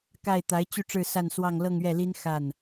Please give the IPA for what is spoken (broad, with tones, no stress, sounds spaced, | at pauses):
k a˥˩ ɪ̯ t̪ a˧˥ ɪ̯ t͡ɕ y˥˧ ʈ͡ʂ ɻ̩˥˧ s a˥˧ n s w ɑ˥˧ ŋ l ɤ˥˧ ŋ ɥ ɛ˥˩ l i˥ n x a˥˩ n